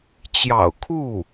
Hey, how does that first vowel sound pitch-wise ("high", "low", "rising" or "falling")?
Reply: low